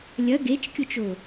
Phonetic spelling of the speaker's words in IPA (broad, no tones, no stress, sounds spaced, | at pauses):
lʲ ɐ ɡ e t͡ʃ kʲ o t͡ʃ o